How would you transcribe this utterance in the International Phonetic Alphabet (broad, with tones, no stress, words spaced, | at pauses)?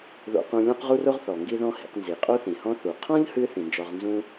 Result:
ðo̰˧ qũ˧lʲɔ̃˥qʁu˥ro˥ʁ θɔ˩ŋɡi˥ðɔ̃˥ hḭ˧q nzi˩qʼo˥θĩ˩hɔ̃˥ θu˩ qʰɔ̃˥ʎhɨ˧ θĩ˩nd͡ʒɔ˧ʁ nzũ˥